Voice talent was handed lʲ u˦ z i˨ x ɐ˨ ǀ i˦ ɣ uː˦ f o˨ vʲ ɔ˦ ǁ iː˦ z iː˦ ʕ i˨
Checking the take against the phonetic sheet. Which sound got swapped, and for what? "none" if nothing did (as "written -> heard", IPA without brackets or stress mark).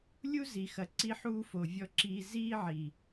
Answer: ɣ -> ħ